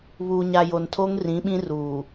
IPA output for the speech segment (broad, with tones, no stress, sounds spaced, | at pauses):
β uː˨ ɲ a˨ j o˨ n tʰ o˦ ŋ r ĩ˨˦ ɓ ĩ˦ r uː˨